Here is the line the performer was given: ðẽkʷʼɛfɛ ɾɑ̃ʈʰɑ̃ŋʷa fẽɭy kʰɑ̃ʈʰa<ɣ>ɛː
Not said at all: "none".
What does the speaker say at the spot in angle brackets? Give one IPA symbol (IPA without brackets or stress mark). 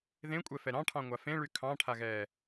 ɣ